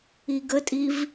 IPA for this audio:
i ɡ ə tʼ i v

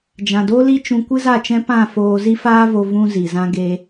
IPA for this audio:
d͡ʒ ã˨ d o˦ l i˦ t͡ʃ ũ˧ kʷ ɨ˦ z a˦˨ t͡ʃ ɛ̃˦ p ã˦˨ f oː˧ z i˦ f aː˦ v o˧ v ũ˧ z i˨ z ã˧ ɡ e˧

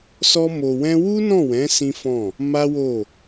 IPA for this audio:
s ɔ˦ m o˧ w ɛ̃˦ w u˦ n ɔ̃˦˨ w ɛ̃˨˦ s ĩ˦ f ɔ̃˦˨ | m a˦ w o˦˨

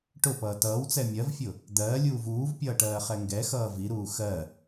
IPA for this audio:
ʈ ʊ p ʌː t ʌː w t͡s ɛ mʲ ɜ v fʲ ʊ | d̪ ɜː lʲ uː v uː v pʲ ʌː ʈ ɜː χ ɛ ŋ ɡ ɛ x ʌː v i ɾ uː x ɜ

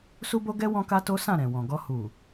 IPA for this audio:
s u˦ b o˦ ɡ ɛ˦ w ɔ̃˦ k a˦ t o˦ s ã˦˨ ɾ ɛ̃˨ w ɔ̃˨ ɡ ɔ˧ h u˨

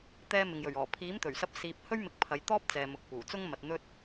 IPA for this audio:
t̪ ɛː˥ m ɪ˨ ŋ j ɵ˨˩ ɥ ɔː˨˩ pʰ iː˨˥ m t̪ ɵ˨˩ ɥ s ɐ˧ p̚ s iː˨ p̚ h ɵ˥ ɥ m ɪ˧ k̚ pʰ ɐ˨˧ j t̪ ɔː˥ p̚ t͡s ɛː˨ m ʊ˨ k̚ p uː˨˩ t͡s ʊ˥ ŋ m ɐ˨ t̚ n̪ ɵ˥ t̚

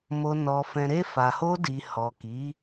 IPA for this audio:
m o˨ n ɔ˨ f ɛ̃˨ ɾ e˧ f a˨ h o˧ d i˨ h ɔ˨ k i˨˦

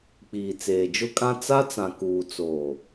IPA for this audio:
k͡p iː˨ t͡s eː˨ d͡ʒ ʊ˦ kʼ ã˦ t͡s a˦ t͡s ã˨ k uː˨ t͡s oː˨

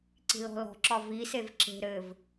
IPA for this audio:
ǀ i̤ l ɔ̤ l ɔ̤ ǁ ɒ v i s e v ǁ e̤ ɾ ɘ v

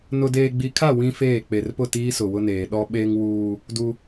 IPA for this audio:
n ʊ˨ d eː˨ ɡ͡b i˨ kʰ a˦˨ w ĩ˦ f eː˦˨ k͡p e˨ r p ʊ˦˨ t iː˦ s ʊ˨ w ʊ˦ n eː˨ ɗ ɔ˦ ɓ eː˦ ŋ w uː˦ | d u˦

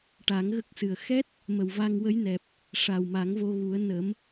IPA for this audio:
ʈ a˨˩˦ ŋ ɣ ə˦˥ k̚ s ɨ˨˩ ə̯ x ɛ˦˥ t̚ | m ə˨˩ w v a˧ ŋ w ə˧˥ j n ɛ˨˩ p̚ | ʂ a˨˩ w m a˨˩˦ ŋ v o˧ ɣ u˨˩˦ ə̯ n ə˨˩˦ m

